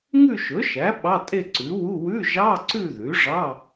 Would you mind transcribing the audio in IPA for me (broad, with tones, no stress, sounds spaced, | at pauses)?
ŋ ʉ˥˧ ʃ ɵ˩˥ ʃ æ˩˥ ɓ ɑ˧˥˧ tʼ e˥˧ ǀ ʉ˩˥ w u˧˥˧ w ʉ˧˥˧ ʒ ɑ˧˥˧ ǀ ʉ˥˧ ð ʉ˩˥ ʐ ɑ˧˥˧